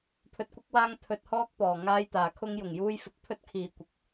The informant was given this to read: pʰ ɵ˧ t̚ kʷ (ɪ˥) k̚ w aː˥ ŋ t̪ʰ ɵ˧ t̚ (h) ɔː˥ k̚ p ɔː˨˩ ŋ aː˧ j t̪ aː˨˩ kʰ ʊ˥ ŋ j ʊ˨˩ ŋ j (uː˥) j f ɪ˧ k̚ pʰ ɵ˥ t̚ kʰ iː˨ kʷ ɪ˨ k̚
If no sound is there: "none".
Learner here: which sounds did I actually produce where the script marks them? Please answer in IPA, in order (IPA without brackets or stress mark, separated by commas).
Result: ɪ˥, h, uː˥